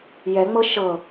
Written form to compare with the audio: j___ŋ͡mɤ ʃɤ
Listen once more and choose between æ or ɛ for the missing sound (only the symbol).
ɛ